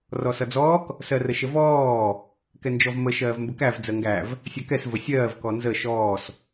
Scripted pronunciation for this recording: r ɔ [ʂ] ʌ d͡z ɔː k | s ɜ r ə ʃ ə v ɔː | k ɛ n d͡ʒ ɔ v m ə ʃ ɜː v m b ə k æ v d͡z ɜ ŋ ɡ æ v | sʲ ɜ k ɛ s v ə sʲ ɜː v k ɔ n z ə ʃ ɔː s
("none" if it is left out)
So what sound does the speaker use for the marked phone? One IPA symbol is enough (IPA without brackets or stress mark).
s